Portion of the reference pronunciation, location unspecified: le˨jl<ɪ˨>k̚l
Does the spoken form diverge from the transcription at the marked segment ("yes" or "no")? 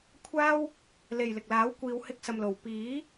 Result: no